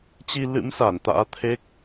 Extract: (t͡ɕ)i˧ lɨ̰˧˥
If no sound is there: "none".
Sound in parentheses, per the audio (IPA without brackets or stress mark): t͡ɕ